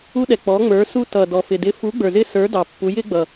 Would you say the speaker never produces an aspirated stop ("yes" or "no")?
yes